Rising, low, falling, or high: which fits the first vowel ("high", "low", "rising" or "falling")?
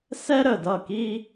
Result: high